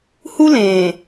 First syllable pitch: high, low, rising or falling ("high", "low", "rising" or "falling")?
high